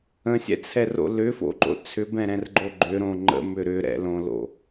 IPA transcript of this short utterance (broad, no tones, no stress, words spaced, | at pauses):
ə̃sʲɛ̰t͡sʰɛro̰ lʏfo̰ǃo̰ t͡sʰʏbɛ̃ɾɛ̃rɡ͡ǃo ɡ͡ǃʏɾõ ŋ͡ǃə̰mʏ ɾʏ ɾɛ̰lõlo̰